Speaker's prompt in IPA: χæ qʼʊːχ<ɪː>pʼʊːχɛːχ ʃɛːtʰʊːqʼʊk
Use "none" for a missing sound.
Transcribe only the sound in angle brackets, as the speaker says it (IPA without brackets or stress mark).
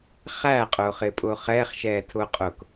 ɪː